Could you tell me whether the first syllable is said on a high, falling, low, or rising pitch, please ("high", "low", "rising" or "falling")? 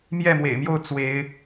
falling